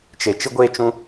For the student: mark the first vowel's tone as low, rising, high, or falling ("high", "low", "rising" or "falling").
low